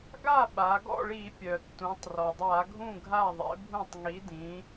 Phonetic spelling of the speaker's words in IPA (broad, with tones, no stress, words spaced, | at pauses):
ɡa˥˩ɓa˩˧ ɡɔ̰˥˩ɭi˧˩˧pʲœ˩tːũ˩˧tˤ rɔ˩dˤa˧˩˧ɡʱũ˥˩ɡʱa˥˩ ðˤḛ˨˥bʱũ˥˩tˤ ŋi˨˥ dĩ˨˥